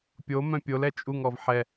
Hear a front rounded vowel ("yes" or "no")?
yes